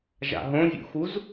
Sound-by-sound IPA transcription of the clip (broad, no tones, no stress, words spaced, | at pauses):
ʒa̰ɦõvʲṵxuz